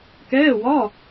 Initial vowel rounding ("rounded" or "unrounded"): unrounded